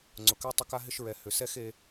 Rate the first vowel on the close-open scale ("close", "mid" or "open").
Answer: close